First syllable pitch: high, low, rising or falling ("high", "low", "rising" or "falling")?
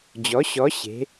rising